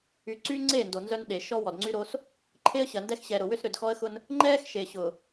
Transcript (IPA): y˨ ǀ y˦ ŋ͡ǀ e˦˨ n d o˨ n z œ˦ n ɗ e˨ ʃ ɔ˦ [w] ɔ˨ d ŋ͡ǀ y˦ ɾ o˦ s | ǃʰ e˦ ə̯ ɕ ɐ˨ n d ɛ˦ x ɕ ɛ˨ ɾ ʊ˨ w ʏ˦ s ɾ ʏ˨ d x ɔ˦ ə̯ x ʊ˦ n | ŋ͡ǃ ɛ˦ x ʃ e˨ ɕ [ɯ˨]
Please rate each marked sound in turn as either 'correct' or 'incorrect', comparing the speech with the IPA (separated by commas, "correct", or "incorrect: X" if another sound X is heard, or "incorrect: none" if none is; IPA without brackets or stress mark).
correct, incorrect: ʊ˨